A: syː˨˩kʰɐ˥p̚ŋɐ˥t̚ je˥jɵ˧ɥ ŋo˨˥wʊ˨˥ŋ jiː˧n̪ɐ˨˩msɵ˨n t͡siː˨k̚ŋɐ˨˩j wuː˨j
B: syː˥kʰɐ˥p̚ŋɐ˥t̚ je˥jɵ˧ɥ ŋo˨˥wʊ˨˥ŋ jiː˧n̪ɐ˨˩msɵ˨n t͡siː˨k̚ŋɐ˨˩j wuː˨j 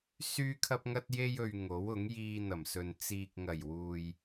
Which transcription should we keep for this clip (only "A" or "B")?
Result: B